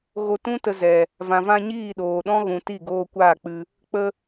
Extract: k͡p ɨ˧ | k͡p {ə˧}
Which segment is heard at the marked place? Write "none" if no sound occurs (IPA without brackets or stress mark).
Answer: ə˧